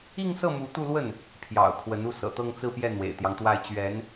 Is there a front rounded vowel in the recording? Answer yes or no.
no